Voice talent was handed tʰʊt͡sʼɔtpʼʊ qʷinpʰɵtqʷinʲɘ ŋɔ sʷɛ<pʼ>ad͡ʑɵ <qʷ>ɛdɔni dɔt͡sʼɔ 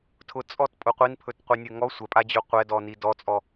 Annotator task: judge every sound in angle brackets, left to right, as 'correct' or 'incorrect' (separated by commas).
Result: correct, correct